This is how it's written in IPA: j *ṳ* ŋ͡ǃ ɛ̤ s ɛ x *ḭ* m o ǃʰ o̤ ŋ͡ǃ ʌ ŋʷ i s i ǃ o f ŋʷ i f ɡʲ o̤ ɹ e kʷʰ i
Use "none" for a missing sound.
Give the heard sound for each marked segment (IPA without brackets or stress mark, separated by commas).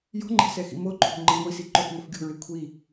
o̤, ḭ